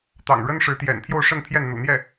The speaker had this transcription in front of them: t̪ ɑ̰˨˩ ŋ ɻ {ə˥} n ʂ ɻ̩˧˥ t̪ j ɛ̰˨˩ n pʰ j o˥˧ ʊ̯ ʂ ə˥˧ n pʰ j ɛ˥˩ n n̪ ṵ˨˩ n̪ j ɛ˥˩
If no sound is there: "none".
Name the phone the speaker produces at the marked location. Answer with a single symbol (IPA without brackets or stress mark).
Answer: ə˥